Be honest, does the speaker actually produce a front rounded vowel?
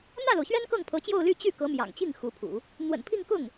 yes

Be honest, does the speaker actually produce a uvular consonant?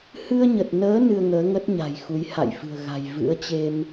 no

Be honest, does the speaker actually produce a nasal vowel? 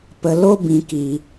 yes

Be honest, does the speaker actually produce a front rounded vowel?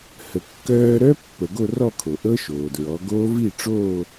yes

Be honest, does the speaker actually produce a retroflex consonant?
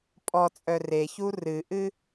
no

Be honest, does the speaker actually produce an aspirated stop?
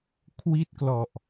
yes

